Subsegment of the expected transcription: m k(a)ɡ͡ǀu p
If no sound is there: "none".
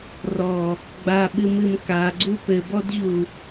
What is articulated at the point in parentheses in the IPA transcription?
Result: a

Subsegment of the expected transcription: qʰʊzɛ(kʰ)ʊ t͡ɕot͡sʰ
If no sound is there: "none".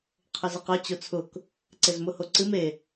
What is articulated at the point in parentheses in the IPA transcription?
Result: q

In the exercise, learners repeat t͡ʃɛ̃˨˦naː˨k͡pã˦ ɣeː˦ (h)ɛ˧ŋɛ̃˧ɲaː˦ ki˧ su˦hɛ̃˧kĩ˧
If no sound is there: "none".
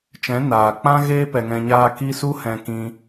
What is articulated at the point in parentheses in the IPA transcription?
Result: p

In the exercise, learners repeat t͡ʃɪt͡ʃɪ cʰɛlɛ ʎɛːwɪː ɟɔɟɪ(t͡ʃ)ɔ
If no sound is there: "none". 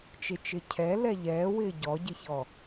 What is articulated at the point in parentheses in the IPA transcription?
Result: ç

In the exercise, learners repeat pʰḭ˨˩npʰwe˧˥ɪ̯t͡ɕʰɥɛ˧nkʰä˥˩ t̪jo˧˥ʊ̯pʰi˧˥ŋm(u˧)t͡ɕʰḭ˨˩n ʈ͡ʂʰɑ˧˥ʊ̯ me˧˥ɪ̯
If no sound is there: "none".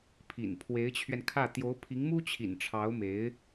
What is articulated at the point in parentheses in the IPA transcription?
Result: u˥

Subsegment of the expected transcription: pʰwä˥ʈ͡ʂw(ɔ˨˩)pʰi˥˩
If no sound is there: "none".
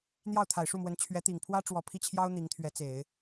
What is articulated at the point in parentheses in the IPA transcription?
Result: ɔ˨˩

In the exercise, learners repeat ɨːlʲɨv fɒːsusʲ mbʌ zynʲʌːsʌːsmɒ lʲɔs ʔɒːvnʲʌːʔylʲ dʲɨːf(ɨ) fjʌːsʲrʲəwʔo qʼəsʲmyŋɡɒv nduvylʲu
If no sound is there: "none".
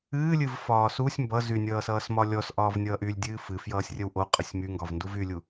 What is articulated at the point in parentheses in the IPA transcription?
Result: ɨ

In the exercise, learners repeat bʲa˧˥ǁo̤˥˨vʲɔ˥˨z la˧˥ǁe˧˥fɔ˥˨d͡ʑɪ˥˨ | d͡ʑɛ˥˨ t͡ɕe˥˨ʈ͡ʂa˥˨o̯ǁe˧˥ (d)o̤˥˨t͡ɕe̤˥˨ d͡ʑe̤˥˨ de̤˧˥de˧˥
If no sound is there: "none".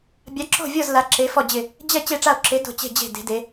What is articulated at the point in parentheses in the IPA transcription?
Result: d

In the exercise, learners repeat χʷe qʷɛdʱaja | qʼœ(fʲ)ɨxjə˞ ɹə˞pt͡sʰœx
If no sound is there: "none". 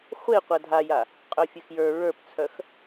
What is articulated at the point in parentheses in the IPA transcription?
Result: fʲ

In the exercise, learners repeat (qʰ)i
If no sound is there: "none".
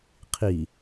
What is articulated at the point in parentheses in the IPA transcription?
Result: qʰ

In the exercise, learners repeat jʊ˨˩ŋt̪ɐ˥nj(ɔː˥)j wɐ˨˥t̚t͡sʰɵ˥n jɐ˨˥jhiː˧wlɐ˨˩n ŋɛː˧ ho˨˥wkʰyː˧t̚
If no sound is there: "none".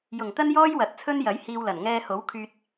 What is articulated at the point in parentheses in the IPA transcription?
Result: ɔː˥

